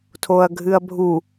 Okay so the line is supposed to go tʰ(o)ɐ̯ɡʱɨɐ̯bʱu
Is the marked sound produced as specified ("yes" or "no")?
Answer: yes